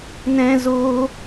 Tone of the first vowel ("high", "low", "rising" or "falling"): high